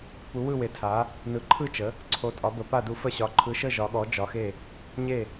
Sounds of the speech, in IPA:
pu˩˧wɯ˧˩we˩˧tʰa˩˧ | nɯ˩˧ǃʰɯ˧˩t͡ʃə˩˧ | ǀʰo˩˧tʼɒ˩˧bə˩˧pa˧˩ du˩˧fə˧˩ɕɒ˩˧ ǃʰɯ˩˧ʃə˧˩ ʒɒ˩˧ɠɔ˩˧ d͡ʒɒ˩˧xe˧˩ | ɲe˧˩

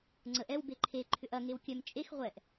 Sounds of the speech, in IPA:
ŋ͡ǀəʔ ɛw beǃʰe ǃʰʏʔɐ ŋewkʲœm t͡ʃʼex ʁʷɛʔ

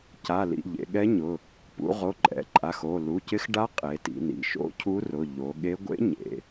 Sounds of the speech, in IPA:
ca˩˧˩lḭ˩˧˩ ʎḛ˩˧ɠɛ˧˥ ɲʊ˩˧˩ | pṵ˩˧ ʁo˩˧˩ǃʼɛ̰˩˧ǃʼa˩˧˩x o˩˧˩ lu˩˧˩cɪ˧˥x ɖa˧˥ qʼe˩˧ tḭ˩˧nḭ˩˧˩ʃo̰˧˥ cʰu˧˥rʊ˩˧˩ ʎo˩˧ɠe˧˥ ɡʷḛ˧˥ ɲḛ˩˧

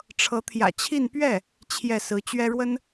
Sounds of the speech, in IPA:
ʈ͡ʂʰɤ˧˥t̪ʰjä̰˨˩t͡ɕʰi˥˧n pɥɛ˥˩ | t͡ɕʰjɛ˥˩sɹ̩˧˥ t͡ɕɥɛ˥ɻwə˥n

